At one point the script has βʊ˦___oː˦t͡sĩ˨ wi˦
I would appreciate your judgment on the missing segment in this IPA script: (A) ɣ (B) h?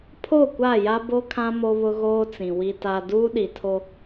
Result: A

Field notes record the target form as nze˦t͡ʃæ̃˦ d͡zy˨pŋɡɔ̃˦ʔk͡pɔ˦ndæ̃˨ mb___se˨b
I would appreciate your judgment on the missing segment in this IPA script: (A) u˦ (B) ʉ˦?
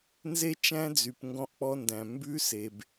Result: B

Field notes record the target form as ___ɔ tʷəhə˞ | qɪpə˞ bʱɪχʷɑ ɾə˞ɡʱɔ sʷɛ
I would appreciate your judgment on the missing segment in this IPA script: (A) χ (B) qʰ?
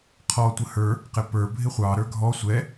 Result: B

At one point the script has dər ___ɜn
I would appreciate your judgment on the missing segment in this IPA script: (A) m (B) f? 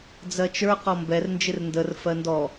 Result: B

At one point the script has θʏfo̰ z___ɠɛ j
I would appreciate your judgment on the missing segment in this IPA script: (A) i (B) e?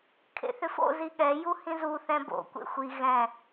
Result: A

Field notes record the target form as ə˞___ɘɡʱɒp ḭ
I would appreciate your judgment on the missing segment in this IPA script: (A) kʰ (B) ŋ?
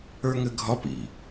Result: B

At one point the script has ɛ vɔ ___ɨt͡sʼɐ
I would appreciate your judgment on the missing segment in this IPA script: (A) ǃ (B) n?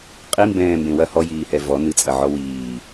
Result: B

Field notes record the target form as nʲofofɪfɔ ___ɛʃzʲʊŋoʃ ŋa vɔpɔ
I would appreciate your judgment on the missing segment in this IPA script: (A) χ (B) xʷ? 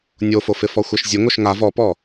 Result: B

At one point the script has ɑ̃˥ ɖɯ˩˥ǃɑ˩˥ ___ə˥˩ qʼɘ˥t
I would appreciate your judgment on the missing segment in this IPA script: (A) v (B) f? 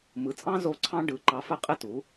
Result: B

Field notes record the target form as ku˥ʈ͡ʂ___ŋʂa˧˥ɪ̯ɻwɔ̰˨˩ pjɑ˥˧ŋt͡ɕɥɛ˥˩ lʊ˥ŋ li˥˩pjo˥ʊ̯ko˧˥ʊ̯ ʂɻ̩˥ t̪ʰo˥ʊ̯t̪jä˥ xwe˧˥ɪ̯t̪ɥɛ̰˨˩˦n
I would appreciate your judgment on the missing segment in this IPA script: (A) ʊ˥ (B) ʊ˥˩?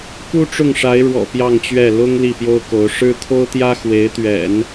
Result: B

